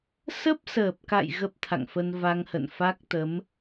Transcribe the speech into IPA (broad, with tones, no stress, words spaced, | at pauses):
sə˦˥p̚səː˨˩p̚ka̰˧˨j ɣə˦˥p̚t̪ʰa̰˧˨ŋfə˧n va˧ŋhə̰˧˨n fa˦˥k̚t̪ə˨˦m